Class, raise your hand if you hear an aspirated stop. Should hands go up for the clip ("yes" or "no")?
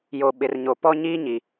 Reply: no